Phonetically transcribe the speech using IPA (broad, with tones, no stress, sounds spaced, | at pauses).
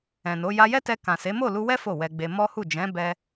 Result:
ɛ̃˨ n o˨˦ j a˧ j ɛ˦ t ɛ˧ k ã˨ s e˨˦ m o˦˨ l u˧ w ɛ˦ f o˦˨ w ɛ˧ ɡ͡b e˧ m ɔ˦ h u˦˨ d͡ʒ ɛ̃˨˦ b ɛ˦